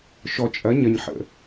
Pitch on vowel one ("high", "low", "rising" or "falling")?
low